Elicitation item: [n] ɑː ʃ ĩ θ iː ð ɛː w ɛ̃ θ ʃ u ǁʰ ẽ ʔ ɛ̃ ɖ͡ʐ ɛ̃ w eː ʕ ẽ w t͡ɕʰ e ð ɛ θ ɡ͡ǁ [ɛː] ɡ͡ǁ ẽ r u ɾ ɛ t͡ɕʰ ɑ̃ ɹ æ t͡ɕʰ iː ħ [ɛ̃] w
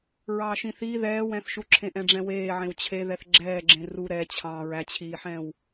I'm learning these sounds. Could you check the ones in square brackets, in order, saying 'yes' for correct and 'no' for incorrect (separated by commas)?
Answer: no, yes, yes